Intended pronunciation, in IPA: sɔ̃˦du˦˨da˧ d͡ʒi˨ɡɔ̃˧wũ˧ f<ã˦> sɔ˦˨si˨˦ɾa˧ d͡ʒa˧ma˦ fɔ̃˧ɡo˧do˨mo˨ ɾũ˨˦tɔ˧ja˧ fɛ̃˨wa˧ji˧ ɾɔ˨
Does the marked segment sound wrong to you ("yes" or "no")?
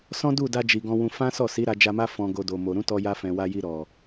no